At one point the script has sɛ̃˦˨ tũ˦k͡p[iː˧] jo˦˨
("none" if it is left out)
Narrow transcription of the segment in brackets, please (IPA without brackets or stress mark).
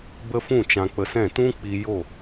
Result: i˧